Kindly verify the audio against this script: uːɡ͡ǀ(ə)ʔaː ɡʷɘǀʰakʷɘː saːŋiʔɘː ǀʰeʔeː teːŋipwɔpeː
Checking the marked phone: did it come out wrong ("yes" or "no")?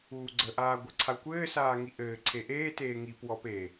no